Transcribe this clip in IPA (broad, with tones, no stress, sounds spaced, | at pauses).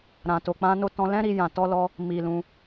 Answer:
ɾ ã˨ t o˨ k͡p ã˧ n o˧ t ɔ̃˧ l ɛ̃˦ ɾ i˧ j ã˨ t ɔ˧ l ɔ˧ | m i˨ l ũ˧